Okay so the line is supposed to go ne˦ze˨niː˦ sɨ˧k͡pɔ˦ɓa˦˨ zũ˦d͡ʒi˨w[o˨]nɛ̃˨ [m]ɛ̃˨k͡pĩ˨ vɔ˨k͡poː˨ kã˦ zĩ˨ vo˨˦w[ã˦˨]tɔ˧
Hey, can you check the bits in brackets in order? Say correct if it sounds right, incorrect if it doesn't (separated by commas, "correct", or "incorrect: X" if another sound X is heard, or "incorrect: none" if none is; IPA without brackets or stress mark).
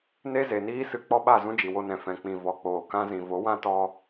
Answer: incorrect: o˧, incorrect: f, incorrect: ã˦